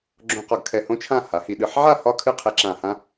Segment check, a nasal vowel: present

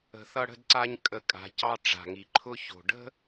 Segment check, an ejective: present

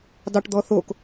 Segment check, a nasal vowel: absent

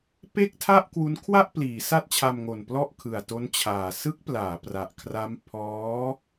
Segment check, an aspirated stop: present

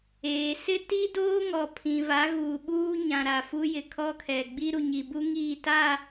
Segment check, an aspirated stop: present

